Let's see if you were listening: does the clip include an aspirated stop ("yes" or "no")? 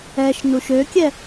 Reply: no